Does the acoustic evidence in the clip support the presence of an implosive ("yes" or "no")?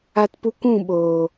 yes